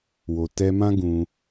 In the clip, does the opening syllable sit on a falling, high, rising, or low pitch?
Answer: low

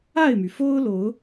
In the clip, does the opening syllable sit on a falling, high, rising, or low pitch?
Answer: falling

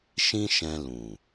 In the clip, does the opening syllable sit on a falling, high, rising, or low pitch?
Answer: high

